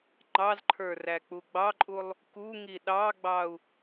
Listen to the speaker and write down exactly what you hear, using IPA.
ŋ͡ǃ ɑ z ǃʰ ə˞ r æ k͡p u ɡ͡b ɑ ǃʼ u lˠ | k u ŋ i ɗ ɑ ɡ͡b ɑ u̯

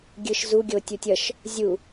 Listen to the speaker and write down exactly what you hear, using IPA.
ɡʲ ɯ ʃ z u ɡʲ o tʲ u tʲ ʌ ʃ | zʲ u

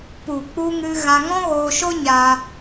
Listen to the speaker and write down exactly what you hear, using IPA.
p u˨ k͡p u˧ ŋ ɨ˧ ɣ ã˧ ŋ ɔ̃˦ ɣ oː˧ ʃ o˦ ɲ aː˧

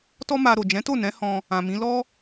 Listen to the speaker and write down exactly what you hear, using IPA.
t ɔ˦ m a˧ ɾ o˨ d͡ʒ ɛ̃˨˦ t o˦˨ n ɛ̃˨˦ h ɔ̃˧ | ã˨ m ĩ˨˦ l ɔ˦

